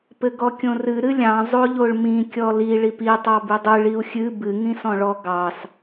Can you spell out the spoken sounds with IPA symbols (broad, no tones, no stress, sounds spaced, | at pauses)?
p ɘ ɡ ɔ kʲ õ r ɨ ɾ ɨ lʲ ɑ̃ zˤ o ʎ o ɭ m ĩ kʲ ɔ l i ɭ i p i tˤ ɑ b ɨ dˤ ɨ ɭ i u̯ xʲ ɨ b ɨ ŋ ĩ s ɔ̃ ɭ ɔ ɡ ɑ s